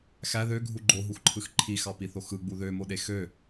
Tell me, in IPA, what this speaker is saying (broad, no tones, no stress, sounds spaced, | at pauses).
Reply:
x æ ð ø ɡʱ u ɡ͡ǃ o ɦ u x ǃʰ ɯ x ǃʰ i x ɑ p i θ o x ɯ ɡ͡b u ð ø m o ɗ e x ø